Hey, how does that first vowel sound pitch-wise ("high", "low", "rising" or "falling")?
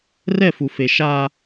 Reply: falling